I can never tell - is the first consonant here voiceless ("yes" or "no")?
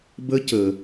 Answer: no